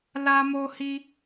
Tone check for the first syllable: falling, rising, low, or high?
high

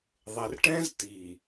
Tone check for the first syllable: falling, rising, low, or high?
low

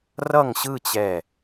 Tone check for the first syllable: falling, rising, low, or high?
falling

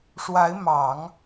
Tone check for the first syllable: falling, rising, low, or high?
rising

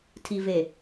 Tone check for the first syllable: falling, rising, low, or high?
low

